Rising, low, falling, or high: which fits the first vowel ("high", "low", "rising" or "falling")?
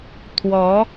rising